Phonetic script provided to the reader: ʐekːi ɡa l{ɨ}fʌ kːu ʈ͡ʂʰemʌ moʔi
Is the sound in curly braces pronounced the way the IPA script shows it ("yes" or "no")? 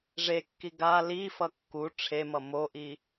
no